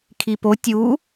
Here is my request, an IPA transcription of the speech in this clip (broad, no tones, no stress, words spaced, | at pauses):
kʰipo tʲu